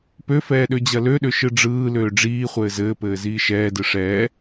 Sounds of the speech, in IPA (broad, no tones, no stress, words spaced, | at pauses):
pøfɛː ɗød͡ʑɐløɗø ʃɯɖ͡ʐɯːløː ɖ͡ʐiːχʷɘː zɘːpɘː ziːʃɛːdɯ ʂɛː